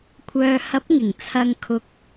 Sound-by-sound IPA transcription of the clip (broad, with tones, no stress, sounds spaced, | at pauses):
kʷʰ œː˨ h ɐ˨˥ p̚ ŋ ɪ˨˩ ŋ t͡sʰ ɐ˧ ŋ kʰ ʊ˨ k̚